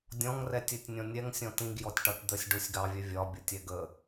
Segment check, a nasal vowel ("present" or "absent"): present